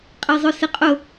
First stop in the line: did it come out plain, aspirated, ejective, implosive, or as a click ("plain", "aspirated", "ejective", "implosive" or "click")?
ejective